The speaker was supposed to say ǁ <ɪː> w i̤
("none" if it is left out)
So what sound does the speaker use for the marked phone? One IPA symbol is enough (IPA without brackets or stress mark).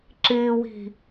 ɪː